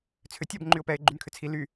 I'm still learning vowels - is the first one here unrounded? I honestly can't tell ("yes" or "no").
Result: no